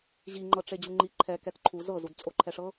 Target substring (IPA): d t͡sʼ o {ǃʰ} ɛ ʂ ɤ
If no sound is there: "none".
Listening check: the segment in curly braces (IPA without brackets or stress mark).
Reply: ǃʰ